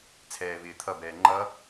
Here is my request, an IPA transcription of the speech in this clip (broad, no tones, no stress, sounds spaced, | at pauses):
t͡sʰ ɛː v ɪː t̪ʰ ʌ b ɛː ŋ͡ǃ ʌ